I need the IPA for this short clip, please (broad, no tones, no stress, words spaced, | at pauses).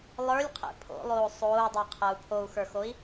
lˠə˞lʲqʰḛ pʰo̰lˠoː sˤoːu̯dˤɤqʰɐu̯ pʰou̯xə˞xoi̯